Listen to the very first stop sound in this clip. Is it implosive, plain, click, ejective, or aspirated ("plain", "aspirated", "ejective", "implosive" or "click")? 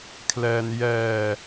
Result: aspirated